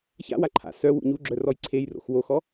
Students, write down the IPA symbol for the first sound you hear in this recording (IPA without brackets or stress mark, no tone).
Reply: ç